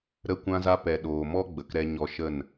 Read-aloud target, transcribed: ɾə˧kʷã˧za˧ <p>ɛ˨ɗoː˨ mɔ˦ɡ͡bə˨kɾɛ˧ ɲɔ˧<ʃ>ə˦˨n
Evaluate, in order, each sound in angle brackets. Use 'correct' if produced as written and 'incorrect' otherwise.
correct, correct

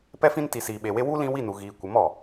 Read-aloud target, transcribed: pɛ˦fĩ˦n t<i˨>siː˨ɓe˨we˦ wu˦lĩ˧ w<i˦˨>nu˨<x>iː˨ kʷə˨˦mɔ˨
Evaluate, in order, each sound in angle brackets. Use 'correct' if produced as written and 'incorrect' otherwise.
correct, correct, incorrect: ɣ

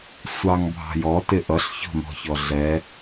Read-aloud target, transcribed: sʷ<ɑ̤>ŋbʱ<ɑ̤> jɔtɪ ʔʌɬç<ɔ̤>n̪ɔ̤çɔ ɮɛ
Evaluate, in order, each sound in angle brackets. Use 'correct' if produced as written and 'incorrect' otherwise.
incorrect: ɑ, correct, correct

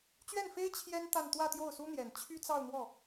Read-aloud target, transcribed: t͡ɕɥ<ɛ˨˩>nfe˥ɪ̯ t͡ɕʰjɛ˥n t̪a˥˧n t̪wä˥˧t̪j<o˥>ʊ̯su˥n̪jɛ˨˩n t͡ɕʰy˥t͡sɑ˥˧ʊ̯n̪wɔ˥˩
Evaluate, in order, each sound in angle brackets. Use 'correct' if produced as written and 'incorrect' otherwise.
incorrect: ɛ˥˩, incorrect: o˥˩

